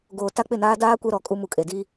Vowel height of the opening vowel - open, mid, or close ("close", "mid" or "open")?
mid